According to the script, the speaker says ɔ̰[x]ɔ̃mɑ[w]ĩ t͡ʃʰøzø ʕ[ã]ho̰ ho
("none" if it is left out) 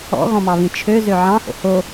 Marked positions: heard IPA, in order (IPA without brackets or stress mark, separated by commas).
ɣ, β, ɑ̃